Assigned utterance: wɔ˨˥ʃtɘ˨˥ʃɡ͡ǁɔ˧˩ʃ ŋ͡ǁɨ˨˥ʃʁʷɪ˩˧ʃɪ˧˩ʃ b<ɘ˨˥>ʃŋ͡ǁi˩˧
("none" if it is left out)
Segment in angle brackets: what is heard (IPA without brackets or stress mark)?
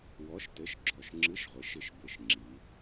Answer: ɘ˧˩